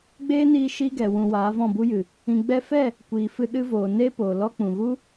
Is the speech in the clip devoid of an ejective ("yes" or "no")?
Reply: yes